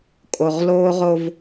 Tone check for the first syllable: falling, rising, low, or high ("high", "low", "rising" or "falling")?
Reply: low